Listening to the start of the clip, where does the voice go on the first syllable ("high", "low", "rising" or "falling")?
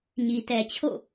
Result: low